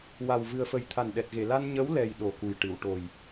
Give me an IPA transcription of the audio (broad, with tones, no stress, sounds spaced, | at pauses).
w a˨˩ w v ɨ˨˩ ə̯ f ə˨˩ j t̪ʰ a˨˩ n ɗ ɛ˨˩ t̚ ɣ e˨˩˨ l a˧ n ɲ ə˧˥ w l ɛ˧ j ɗ o˨˩ k u˨˩ j ʈ ɨ˨˩˨ w ʈ o˨˩ j